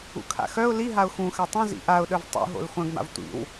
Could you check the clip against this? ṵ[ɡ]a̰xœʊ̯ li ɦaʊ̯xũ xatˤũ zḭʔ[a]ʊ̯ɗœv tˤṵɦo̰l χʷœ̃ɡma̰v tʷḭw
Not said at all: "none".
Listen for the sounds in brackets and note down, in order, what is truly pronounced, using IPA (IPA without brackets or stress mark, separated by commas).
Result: kʰ, a